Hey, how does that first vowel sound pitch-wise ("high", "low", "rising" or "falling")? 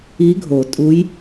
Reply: rising